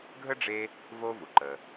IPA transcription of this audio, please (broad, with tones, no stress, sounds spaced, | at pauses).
ɡʱ ə˥ ɖ͡ʐ e˦ | v o˦ v u˩ ǃ ə˩